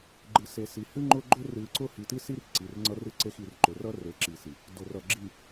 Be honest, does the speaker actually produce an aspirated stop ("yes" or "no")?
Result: no